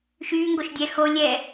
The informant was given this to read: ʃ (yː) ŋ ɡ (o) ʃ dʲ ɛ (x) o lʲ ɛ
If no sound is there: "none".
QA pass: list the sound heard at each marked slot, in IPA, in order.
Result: yː, o, x

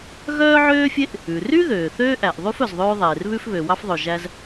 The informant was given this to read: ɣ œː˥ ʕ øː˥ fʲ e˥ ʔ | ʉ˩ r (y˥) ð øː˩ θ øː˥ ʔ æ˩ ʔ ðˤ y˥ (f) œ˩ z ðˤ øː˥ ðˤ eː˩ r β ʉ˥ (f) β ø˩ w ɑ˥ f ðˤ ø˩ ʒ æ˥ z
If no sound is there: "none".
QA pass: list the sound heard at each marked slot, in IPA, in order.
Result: y˥, f, f

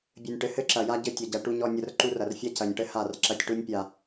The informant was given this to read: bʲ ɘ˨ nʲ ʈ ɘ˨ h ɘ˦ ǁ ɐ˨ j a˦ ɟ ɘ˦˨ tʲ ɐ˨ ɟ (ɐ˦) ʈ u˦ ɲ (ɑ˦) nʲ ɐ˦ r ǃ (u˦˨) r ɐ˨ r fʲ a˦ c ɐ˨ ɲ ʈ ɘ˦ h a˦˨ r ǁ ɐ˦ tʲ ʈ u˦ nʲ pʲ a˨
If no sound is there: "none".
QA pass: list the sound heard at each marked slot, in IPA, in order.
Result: ɐ˨, ɔ˦, u˦

